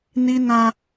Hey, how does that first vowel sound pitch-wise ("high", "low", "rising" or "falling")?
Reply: high